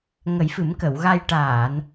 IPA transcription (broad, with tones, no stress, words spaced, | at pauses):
ŋə˨˩˦jfɨ˨˩˦mkə˨˩˨wɣa˧j ʈaː˨˩˨n